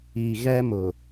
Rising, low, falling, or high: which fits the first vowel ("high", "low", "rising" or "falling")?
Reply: low